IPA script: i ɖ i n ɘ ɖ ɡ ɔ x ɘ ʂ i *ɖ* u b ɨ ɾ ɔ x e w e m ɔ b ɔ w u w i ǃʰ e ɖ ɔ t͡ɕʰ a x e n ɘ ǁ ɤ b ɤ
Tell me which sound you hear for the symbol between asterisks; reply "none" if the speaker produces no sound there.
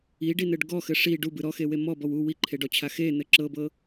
ɖ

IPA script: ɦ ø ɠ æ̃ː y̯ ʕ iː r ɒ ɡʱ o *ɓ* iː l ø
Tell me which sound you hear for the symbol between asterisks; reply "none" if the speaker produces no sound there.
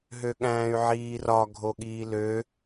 ɠ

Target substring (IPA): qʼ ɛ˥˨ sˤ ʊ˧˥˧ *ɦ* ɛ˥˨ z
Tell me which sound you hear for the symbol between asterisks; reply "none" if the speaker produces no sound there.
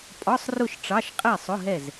ɦ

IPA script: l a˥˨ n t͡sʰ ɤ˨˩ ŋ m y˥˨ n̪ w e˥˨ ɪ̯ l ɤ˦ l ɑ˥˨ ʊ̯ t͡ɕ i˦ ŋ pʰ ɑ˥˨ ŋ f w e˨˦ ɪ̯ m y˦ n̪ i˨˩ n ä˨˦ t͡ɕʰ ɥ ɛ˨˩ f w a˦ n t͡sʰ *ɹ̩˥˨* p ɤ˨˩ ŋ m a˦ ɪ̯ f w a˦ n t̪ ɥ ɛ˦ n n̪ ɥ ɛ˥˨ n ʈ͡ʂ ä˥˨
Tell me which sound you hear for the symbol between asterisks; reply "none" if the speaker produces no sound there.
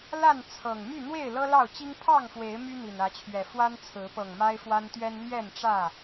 ɹ̩˨˦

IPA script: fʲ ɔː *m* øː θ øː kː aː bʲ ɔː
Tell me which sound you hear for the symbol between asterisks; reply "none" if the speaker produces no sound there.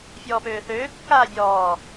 p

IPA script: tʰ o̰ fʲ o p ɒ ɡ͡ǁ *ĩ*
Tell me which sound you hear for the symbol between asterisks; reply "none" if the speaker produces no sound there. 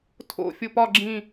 ĩ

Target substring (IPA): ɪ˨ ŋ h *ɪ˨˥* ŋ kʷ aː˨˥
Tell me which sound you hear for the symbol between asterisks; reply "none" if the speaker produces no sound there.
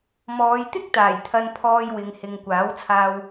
ɪ˨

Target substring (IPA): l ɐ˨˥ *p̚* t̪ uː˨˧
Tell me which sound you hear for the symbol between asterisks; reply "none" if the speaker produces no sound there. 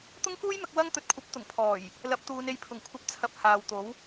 p̚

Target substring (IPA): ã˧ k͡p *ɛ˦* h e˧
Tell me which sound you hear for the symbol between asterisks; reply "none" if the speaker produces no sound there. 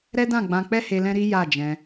ɛ˦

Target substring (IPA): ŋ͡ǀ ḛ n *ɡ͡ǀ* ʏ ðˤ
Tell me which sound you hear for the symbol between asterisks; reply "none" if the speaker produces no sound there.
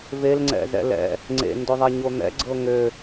d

